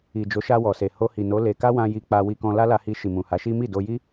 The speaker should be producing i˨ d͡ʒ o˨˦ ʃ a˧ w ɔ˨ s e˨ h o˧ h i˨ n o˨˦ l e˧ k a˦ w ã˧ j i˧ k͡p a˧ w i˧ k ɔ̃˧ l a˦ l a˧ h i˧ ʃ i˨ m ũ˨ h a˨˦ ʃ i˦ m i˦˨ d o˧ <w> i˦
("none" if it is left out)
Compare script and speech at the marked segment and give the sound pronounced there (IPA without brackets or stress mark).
j